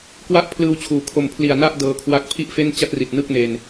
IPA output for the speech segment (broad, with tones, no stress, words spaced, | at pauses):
kwa˥˩ʔ pʰlɯː˧wt͡ɕʰuː˩˦ kʰo˨˩mpʰli˨˩a̯ na˥˩ʔ dɤː˧kʰwa˦˥k̚pʰi˥˩ʔfe˥˩n t͡ɕa˥˩t̚ri˨˩t̚ nɯ˥˩k̚ne˧n